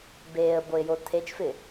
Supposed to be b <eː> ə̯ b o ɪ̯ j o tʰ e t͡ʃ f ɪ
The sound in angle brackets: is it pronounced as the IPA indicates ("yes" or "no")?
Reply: yes